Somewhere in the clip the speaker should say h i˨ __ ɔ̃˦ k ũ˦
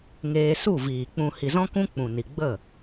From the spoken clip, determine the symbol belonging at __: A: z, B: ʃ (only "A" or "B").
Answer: A